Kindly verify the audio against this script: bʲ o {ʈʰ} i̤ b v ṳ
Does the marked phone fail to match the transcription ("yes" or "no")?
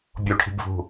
no